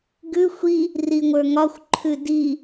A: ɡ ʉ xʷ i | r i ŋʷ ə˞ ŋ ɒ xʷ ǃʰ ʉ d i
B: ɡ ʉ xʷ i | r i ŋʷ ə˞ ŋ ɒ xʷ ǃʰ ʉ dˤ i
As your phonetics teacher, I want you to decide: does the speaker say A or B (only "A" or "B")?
A